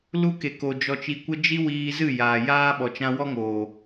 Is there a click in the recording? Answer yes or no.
no